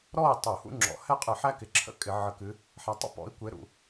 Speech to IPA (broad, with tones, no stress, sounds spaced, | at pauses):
ɾ ɔ˥˨ i̯ tˤ u˧˩˧ h ṵ˥ ŋ͡ǁ ɔ̰˨˦ h ɛ˥˨ qʼ ɨ˧˩˧ ħ æ˥ k ɪ˨˦ ǁʰ ə̰˥ kʼ ɪ˧˩˧ ʕ ə˨˦ k ɨ˨˦ | ħ æ˨˦ tˤ ə̰˥˨ p ɔ̰˨˦ i̯ kʷ e˨˦ ɾ ṵ˧˩˧